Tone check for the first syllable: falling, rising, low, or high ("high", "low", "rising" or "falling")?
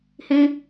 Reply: high